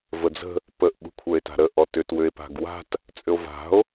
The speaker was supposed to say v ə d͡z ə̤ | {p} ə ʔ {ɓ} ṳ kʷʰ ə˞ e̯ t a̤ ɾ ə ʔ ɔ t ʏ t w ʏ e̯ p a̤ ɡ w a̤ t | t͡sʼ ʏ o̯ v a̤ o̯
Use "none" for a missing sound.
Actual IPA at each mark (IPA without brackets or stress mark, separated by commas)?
p, ɓ